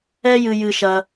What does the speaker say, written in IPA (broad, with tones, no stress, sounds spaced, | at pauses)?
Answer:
ɛ˦ j ɨ˧ j ɨ˧ ʃ ɐ˧